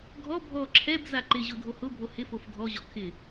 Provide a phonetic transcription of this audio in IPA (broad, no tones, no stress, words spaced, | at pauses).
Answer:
ɡʱɔ bʱɔ ǁʰɛbza ǃɪʑʊ dʱohʊbʱo hɪfof dʱɔʑɔ kʰɪ